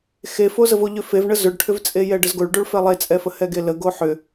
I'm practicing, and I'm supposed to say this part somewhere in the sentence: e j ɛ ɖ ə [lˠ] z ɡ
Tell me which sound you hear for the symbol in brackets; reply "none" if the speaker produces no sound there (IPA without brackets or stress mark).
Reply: none